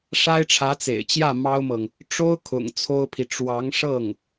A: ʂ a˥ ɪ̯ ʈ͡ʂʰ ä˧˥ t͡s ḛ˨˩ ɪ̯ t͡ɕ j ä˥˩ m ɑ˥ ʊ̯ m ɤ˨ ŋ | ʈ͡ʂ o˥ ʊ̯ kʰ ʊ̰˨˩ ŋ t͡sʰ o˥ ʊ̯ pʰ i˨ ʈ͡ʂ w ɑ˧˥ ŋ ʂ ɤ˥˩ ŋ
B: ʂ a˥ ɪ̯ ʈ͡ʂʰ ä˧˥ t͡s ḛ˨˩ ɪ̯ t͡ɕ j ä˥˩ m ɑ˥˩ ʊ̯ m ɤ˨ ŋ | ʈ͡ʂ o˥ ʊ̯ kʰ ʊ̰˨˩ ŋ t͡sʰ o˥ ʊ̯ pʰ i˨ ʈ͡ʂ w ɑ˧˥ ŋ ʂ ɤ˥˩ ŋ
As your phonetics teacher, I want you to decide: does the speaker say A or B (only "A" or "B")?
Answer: A